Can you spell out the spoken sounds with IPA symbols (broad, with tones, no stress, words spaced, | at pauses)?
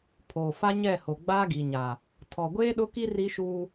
pʰoː˨fa˦ɲɛ˦˨ho˨ ɡ͡baː˦ɡi˨ɲa˨ | tʰɔ˨ɡʷeː˦ɗʊ˦ki˦ ri˦ʃuː˦